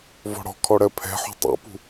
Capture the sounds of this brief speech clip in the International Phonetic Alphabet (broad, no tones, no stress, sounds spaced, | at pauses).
v ɔ̤ ɽ ɔ̤ kʰ ɔ ɽ ɜ pʰ ɛ̤ ħ ṳ tˤ ṵ p ṳ